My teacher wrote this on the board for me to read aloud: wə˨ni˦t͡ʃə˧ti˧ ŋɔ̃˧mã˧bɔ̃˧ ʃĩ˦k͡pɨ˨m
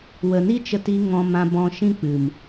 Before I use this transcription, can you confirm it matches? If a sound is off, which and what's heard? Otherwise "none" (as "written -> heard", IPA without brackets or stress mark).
none